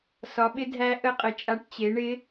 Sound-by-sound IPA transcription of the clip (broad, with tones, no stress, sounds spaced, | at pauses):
s ɒ˩˥ ɓ ɪ˧˥ dʱ æ˧˥ ʔ ə˧˥ qʼ ə˩˥ t͡ʃʼ a˧˥ ʈ t͡ɕ e˩˥ ɳ ɪ˧˥